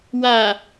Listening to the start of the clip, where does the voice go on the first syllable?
low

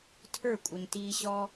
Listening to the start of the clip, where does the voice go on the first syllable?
falling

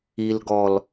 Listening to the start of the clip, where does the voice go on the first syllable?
low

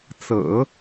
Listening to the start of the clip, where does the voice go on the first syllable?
low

